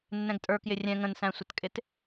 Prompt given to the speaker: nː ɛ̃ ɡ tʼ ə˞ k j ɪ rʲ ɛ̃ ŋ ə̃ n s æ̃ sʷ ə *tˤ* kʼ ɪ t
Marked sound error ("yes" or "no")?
yes